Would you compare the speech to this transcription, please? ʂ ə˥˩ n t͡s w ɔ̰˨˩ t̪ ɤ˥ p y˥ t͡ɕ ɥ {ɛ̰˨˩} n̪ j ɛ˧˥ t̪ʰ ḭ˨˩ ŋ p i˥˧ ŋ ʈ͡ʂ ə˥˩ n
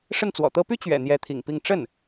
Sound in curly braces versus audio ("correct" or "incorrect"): correct